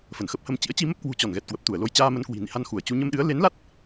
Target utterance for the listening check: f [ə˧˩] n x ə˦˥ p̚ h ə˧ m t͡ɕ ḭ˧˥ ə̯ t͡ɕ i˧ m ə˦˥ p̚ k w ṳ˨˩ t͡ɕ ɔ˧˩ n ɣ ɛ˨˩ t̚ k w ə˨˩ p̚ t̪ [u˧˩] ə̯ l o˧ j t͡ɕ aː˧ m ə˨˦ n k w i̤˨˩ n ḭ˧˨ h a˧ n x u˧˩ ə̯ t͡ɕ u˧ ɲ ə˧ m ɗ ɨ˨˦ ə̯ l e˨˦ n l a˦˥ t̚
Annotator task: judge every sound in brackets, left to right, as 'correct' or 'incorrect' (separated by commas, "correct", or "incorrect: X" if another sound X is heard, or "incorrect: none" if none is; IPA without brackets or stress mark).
correct, correct